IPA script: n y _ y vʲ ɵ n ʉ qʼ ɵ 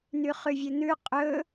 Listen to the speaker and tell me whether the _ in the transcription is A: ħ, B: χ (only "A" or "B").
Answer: B